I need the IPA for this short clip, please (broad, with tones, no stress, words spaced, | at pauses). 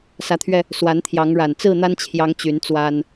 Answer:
sä˨˦t̪ʰɥɛ˧ | swa˨˦nt̪ʰjɑ˨˦ŋɻa˨˩n t͡sɹ̩˥˨n̪a˦nt͡ɕʰjɑ˨˦ŋ t͡ɕy˨˦nt͡swa˦n